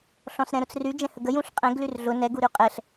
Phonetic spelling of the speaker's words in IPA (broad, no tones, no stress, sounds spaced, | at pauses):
ɬ ɔ̃ s ɾ ɛ̃ ɾ ʊ t͡s r y d͡ʒ ɛ̃ h ə ɡ ə j ũ ɬ qʼ ɛ̃ ɡ l y r ɮ ʊ n ɛ ɡ u ɾ y qʼ ɛ ɬ